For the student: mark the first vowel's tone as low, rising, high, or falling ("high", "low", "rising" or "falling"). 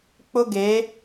high